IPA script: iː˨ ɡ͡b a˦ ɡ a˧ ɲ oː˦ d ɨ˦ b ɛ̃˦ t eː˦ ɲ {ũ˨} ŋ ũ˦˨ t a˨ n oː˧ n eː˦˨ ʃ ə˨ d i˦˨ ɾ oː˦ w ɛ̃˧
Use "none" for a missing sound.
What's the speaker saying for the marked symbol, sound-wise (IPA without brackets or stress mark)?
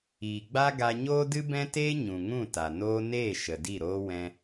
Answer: ũ˨